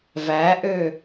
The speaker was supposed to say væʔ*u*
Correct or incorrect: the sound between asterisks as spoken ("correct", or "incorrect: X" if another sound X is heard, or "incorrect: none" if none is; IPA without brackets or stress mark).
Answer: incorrect: ø